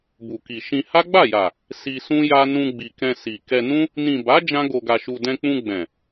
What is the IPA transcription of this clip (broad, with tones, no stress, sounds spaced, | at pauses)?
b u˨ k i˨ ʃ ĩ˧ h a˦ ɡ͡b a˦˨ j a˨ | s i˧ s ũ˦ j a˦ n ũ˧ ɡ͡b i˨ k ɛ̃˧ s i˨ k ɛ˧ n ũ˦ | n ĩ˨ b a˨˦ d͡ʒ ã˦ ɡ o˧ ɡ a˧ ʃ u˧ d ɛ̃˧ k͡p ũ˧ ɡ͡b ɛ̃˨